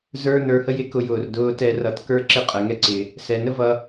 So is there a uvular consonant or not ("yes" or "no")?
yes